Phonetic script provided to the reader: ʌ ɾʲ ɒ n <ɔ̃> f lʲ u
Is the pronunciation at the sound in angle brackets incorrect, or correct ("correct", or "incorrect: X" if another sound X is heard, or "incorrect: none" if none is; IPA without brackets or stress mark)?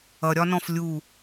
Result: correct